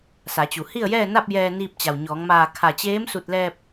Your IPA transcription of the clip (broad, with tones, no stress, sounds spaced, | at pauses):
s a˩˧ t͡ɕ u˩ h i˥˨ ə̯ j ɛː˥˨ n a˥˨ p̚ j ɛː˧ n iː˧ p̚ t͡ɕ a˩ w ɲ ɔː˩˧ ŋ m aː˧˩ kʰ a˧˩ t͡ɕ eː˧˥ m s u˧˩ t̚ l ɛː˧ p̚